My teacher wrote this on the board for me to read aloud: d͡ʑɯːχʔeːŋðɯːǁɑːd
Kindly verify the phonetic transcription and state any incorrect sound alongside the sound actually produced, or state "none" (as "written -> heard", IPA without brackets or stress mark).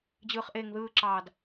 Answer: none